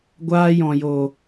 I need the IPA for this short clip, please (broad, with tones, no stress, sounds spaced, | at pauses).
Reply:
ɡʷ aː˧ j ɔ̃˨ j o˨